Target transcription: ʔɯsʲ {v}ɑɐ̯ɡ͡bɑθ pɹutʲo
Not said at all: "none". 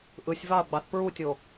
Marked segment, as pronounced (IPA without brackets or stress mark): v